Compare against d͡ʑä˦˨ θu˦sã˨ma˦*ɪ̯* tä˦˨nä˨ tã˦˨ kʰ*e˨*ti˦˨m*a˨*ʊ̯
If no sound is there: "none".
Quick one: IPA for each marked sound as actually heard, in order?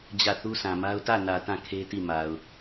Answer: ʊ̯, e˦, a˨

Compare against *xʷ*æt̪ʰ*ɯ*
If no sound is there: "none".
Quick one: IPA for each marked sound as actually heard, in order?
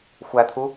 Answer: xʷ, u

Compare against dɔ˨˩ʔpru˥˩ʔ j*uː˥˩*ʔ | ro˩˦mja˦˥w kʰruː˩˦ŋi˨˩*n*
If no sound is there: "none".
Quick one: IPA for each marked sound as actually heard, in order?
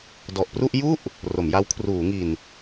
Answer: u˥˩, n

